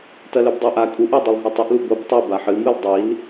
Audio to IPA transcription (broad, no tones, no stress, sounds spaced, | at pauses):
t ɐ l ɵ b dˤ o ʔ a kʼ u ʔ o dˤ ɨ lˠ ɦ ɵ tˤ o ʔ l u b o b tˤ ʉ b a ħ ɨ m ɨ l dˤ i l